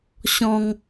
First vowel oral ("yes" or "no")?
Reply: no